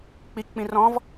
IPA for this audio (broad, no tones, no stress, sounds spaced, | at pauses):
k͡p i k k͡p ĩ r ɔ̃ v